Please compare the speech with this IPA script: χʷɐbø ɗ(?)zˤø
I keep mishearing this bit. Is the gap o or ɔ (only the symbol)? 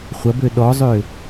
ɔ